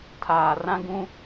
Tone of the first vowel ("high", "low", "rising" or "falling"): low